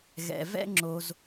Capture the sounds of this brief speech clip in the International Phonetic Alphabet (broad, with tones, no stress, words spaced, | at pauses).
ɣɛ̰˨vɛ̰˦ ŋ͡ǁo˧z